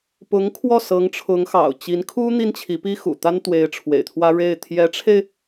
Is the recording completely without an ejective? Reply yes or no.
yes